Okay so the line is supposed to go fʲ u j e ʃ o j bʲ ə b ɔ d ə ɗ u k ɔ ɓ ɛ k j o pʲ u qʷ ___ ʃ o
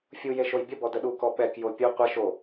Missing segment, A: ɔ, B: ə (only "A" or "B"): B